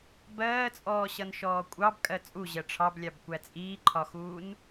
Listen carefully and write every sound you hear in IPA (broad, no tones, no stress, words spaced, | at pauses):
bɜːt͡sʼɔːɕʌnʃɔː kʷʼɑbkʼɜ t͡sʼuʑɜ ʈ͡ʂʰɑblʲɑbkʷæ t͡sʼiːǃʰɒxuːn